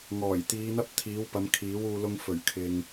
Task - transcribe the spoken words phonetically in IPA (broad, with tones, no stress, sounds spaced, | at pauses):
ŋ ɔː˨˩ j t̪ iː˨˧ n̪ ɐ˥ p̚ t̪ʰ iː˨˥ w p ɐ˨˧ m kʰ iː˨˥ w uː˧ l ʊ˧ ŋ f ɵ˨˩ ɥ kʰ ɪ˨ ŋ